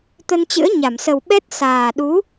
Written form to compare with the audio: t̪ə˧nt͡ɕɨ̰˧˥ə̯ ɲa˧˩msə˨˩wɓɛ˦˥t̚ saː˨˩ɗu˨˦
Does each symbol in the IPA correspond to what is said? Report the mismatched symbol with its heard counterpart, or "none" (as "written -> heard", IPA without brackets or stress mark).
none